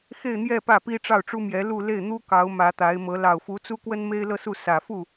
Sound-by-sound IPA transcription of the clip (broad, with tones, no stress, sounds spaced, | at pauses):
x e˥˧ ɪ̯ n̪ j ɛ˥˧ p ä˥˩ p i˥ ʈ͡ʂ ɑ˥˩ ʊ̯ ʈ͡ʂ u˥ m j ɛ˧˥ l u˥˧ l e˥˩ ɪ̯ n̪ u˥ k ɑ˧˥ ʊ̯ m ä˧˥ t̪ a˧˥ ɪ̯ m ɤ˧˥ l ɑ˨˩ ʊ̯ f u˧˥ t͡s u˥ k w ə˥ n m e˥ ɪ̯ l ɤ˥˧ s u˥˩ s ä˨˩ f u˥˩